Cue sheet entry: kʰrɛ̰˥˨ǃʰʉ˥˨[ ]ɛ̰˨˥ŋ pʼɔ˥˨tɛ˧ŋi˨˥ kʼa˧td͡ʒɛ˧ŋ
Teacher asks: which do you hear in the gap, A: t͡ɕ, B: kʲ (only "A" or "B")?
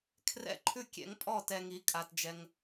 B